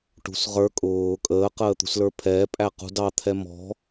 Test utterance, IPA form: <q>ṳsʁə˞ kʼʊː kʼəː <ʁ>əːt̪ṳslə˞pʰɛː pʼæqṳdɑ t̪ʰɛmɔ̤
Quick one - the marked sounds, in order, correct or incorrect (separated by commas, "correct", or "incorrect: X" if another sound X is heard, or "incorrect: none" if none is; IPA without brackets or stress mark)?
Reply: incorrect: ʈ, incorrect: q